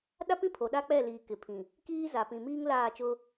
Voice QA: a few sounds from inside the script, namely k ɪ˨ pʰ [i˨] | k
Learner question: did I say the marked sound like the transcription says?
no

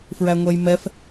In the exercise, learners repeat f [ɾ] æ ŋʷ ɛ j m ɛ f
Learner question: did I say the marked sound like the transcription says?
no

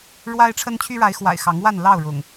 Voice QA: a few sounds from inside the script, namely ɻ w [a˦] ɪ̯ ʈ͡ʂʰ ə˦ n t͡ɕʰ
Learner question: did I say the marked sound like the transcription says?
yes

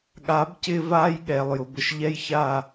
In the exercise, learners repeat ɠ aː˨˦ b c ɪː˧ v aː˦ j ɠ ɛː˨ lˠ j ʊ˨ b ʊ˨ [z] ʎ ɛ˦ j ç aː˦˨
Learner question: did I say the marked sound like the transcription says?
no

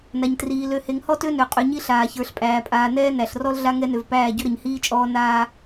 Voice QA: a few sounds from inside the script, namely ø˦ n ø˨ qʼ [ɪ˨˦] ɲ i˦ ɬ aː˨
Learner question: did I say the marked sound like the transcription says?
no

